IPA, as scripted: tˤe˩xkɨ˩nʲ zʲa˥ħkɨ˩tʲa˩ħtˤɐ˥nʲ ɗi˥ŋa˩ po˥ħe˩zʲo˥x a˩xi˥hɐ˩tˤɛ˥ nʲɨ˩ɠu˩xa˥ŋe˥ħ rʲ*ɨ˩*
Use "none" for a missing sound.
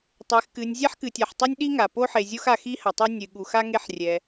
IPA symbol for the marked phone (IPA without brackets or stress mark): ɛ˩